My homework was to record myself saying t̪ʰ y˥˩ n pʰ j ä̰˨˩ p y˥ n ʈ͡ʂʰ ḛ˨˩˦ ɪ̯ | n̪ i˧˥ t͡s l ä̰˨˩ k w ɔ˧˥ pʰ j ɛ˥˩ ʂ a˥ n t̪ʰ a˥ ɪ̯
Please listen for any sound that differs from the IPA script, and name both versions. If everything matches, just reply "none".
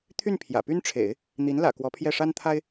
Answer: t͡s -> n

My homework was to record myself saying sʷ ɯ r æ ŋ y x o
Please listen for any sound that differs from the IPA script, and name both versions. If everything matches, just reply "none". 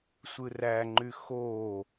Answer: ŋ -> ŋ͡ǃ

